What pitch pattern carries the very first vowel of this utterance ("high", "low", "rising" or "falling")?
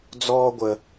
high